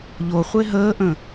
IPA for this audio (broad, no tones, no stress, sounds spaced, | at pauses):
ʎ o χʷ e ɦ əː ʔ ə̃